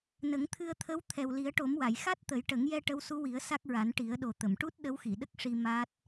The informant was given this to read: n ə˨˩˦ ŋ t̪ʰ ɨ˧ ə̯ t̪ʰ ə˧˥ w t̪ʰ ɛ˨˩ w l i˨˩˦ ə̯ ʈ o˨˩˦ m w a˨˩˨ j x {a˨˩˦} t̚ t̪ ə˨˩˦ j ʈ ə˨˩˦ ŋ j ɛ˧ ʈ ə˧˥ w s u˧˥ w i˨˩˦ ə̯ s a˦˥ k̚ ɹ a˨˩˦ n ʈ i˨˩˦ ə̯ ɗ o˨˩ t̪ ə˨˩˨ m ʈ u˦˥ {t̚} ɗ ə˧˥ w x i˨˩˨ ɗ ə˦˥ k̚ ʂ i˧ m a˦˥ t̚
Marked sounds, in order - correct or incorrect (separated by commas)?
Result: incorrect, correct